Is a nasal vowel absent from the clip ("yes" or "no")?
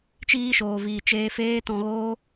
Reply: no